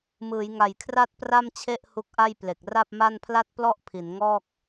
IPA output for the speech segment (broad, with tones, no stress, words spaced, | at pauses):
mɯː˩˦jŋa˨˩jkʰra˥˩t̚ pra˥˩mt͡ɕʰe˥˩ʔ hu˦˥k̚ʔa˥˩jple˨˩k̚ ra˥˩p̚ma˥˩n pʰla˥˩t̚plɔ˥˩ʔ pʰi˩˦nŋɔː˥˩k̚